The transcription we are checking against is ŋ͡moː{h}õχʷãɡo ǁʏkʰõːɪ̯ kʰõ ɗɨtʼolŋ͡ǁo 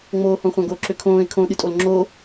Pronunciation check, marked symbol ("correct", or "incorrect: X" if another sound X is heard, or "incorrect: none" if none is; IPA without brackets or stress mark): correct